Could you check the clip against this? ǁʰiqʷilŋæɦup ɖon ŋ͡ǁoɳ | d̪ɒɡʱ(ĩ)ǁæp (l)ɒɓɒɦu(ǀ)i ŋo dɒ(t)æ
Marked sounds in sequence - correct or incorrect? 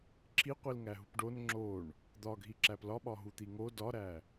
incorrect, correct, incorrect, incorrect

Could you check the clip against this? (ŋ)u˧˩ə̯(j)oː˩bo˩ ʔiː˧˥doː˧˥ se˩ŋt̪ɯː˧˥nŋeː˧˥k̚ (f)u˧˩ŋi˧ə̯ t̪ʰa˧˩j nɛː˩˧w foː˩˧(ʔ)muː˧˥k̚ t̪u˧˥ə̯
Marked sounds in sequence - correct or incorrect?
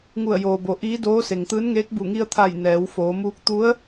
correct, correct, incorrect, incorrect

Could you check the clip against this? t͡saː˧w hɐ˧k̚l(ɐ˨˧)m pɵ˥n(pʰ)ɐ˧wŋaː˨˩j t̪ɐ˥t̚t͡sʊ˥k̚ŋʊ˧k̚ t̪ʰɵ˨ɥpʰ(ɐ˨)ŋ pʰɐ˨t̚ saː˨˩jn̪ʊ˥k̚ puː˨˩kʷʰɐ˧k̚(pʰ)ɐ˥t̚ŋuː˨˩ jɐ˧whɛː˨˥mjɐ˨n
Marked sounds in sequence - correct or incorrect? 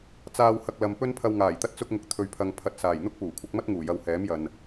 incorrect, correct, correct, incorrect

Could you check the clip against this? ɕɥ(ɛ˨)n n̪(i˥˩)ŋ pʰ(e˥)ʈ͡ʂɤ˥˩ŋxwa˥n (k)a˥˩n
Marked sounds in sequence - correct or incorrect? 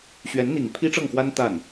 incorrect, incorrect, incorrect, incorrect

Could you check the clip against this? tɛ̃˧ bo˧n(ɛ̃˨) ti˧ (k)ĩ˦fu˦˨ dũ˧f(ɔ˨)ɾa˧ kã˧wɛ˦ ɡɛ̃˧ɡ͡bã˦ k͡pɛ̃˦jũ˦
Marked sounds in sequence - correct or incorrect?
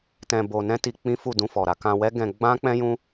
incorrect, incorrect, correct

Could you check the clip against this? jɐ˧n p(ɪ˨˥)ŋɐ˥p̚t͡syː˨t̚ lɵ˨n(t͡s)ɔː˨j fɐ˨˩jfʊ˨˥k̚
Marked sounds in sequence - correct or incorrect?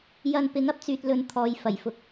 correct, incorrect

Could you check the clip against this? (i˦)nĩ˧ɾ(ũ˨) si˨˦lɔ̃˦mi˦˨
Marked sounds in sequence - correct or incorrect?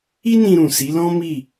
correct, correct

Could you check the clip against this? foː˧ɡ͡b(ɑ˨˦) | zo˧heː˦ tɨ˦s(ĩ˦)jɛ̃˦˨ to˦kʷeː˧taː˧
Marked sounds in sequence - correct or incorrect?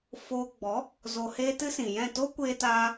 incorrect, incorrect

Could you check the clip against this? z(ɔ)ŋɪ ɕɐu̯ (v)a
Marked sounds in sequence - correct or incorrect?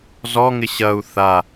correct, incorrect

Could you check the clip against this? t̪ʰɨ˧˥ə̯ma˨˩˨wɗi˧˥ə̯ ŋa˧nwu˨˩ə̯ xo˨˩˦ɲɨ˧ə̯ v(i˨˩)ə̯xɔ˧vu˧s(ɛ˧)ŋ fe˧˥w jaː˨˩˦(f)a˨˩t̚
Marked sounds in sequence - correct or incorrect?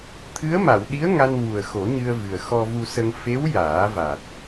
incorrect, incorrect, incorrect

